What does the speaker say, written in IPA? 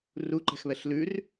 r u ǃ ɛ̤ x β ɛ ɬ l ʉ r

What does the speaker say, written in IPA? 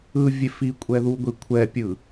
ɯ vʲ e f i kʷʼ ɛ ð u ɡʷ i kʷʰ ɛ pʲ ɯ

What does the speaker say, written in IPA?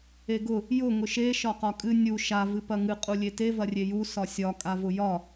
e ɡ ʊ | j ʊ ŋ ʊ ʃ e ʃ ɒ q ɒ kʼ ɨ nʲ u ʃ a v ɨ p ɐ ŋ ɨ qʼ u lʲ e t e v ɐ rʲ e j u s ɒ sʲ ɒ kʼ a v ʊ j ɒ

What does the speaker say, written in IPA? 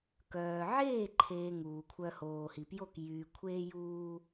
k œː˨ ʕ eː˦˨ ǃʰ eː˨ ŋ uː˨ kʷʰ œ˧ h oː˨ h i˨ p j o˦˨ k j yː˨ kʷʰ eː˧ j uː˧

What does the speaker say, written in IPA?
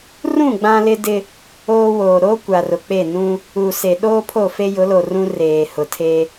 r ũ˦˨ ɡ͡b ã˦ l ɪ˦ d ɪ˦ | oː˦ w oː˨ ɾ o˦ kʷ a˨ r ʊ˨ k͡p e˦˨ n ũ˦ | u˨ s e˨ ɗ oː˦ pʰ o˦˨ f e˦ j ʊ˨˦ l o˨ r ũ˦ r eː˨ h ʊ˨ tʰ e˦

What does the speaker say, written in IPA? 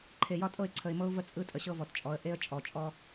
ǃʰ e˨ j ɒ˦ tʼ ɤ˦˨ ɪ̯ ǀʰ ə˨ ɪ̯ m ɤ˦ ʊ̯ v ə˦ t͡sʼ ɯ˦ tʼ ə˨ ɕ ɤ˦ v ɔ˨ t t͡ʃʼ ɔ˨˦ ə̯ ʔ e˦ ə̯ t͡ʃʼ ɔ˨ t͡ʃʼ ɔ˦

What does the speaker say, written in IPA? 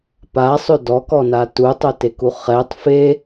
p a sˤ ø d ɔ k ɔ n a t u tˤ œ t e k u χ ɛ tˤ f e

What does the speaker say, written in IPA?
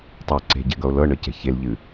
tˤ o ǀ e̤ ɟ ɛ̤ ɡ ʌ o̯ l ɤ ɳ ɤ c ɛ̤ ç e l ʎ ɨ

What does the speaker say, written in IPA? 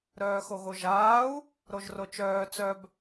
ɾ œː x o ɣ o ʒ aː u̯ | ɾ o ʒ r o t͡ʃ œː t͡s œ b

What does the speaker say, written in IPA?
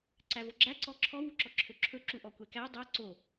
ǀ æ v o ɡ͡ǁ æ ǀ ɔ ǁʰ ɔ w u ǁ ɔ ǁʰ ø ǁʰ ɵ ǁ u ʔ ɔ kʷ ɛ k æ dˤ œ ǀ o

